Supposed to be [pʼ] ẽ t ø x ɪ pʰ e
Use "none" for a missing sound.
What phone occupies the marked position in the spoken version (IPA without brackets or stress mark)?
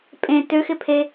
pʼ